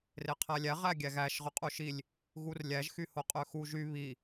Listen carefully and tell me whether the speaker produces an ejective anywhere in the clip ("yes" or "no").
yes